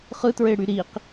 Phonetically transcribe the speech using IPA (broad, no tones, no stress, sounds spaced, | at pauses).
χ ɯ t ɹ e ɽ y ɾ i q